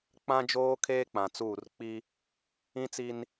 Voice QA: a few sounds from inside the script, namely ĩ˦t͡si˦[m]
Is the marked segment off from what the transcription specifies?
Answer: yes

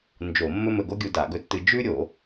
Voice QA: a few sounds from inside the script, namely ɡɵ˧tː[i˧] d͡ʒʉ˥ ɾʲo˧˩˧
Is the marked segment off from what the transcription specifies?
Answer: yes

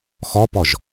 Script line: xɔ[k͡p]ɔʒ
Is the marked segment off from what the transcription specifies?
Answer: yes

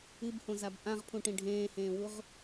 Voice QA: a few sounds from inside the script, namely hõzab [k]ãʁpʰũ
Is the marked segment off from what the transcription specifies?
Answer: yes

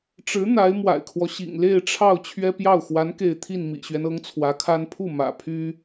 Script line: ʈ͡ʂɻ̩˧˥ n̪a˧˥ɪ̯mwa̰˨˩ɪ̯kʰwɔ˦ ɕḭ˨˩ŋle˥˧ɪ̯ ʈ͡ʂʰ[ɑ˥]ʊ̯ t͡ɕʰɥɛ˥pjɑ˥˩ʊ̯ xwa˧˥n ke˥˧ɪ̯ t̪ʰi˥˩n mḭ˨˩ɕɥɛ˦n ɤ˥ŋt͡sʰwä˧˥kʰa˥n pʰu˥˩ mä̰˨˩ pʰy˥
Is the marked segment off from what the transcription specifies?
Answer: yes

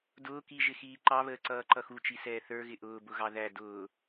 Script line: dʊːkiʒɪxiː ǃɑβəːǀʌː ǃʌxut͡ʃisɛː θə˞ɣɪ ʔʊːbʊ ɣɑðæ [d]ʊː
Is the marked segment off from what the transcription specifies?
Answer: no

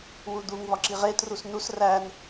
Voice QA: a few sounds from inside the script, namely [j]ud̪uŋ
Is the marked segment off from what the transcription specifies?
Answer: yes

